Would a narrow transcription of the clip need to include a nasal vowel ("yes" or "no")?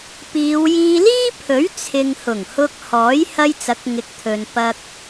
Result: no